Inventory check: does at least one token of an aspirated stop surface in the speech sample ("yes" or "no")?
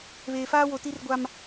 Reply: no